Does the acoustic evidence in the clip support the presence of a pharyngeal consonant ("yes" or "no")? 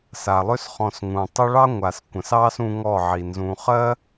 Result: yes